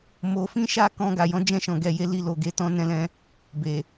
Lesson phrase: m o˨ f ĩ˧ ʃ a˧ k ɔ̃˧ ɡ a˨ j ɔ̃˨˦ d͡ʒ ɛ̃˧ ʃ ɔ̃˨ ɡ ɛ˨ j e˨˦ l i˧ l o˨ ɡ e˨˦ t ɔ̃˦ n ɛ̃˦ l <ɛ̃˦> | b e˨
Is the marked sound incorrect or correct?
correct